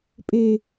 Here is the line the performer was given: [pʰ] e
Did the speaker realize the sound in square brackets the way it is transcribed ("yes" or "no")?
no